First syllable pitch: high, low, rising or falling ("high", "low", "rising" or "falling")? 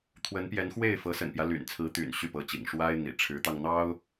rising